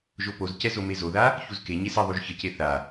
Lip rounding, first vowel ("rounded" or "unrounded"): rounded